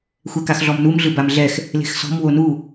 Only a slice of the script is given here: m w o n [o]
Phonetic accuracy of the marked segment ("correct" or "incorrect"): incorrect